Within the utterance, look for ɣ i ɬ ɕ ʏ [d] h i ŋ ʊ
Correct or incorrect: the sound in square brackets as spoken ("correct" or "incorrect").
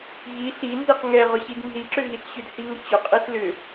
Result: correct